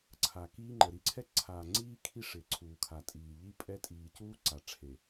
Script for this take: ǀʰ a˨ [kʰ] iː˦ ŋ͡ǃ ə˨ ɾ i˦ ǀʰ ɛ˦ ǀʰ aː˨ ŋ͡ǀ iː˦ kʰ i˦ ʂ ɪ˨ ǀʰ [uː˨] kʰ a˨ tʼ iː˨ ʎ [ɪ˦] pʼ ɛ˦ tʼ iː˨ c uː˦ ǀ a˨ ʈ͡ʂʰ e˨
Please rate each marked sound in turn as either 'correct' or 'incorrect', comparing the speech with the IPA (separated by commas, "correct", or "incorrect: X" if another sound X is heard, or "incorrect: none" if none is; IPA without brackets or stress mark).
incorrect: k, correct, incorrect: i˦